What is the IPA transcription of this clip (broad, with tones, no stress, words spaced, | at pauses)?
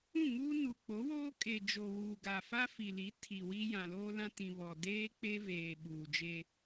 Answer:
ũ˦˨ŋuː˦ nu˨ k͡po˨˦woː˦ kʼe˨d͡ʒo˨ wuː˨ɡa˨ fa˦fi˨li˨˦ tʰi˨wi˦ jã˨loː˦lã˦tĩ˨ βɔ˨deː˦k͡pe˦veː˨ ɓuː˨d͡ʒe˦